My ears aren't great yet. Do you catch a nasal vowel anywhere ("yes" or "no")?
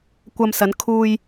no